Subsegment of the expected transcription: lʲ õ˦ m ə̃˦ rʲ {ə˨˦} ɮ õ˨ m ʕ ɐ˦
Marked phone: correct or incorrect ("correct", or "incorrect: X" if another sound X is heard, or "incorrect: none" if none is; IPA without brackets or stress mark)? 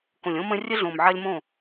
incorrect: ə˦